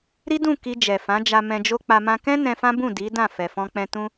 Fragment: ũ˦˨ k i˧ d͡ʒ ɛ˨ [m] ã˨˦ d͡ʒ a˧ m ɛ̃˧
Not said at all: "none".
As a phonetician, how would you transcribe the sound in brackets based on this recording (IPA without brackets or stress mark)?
f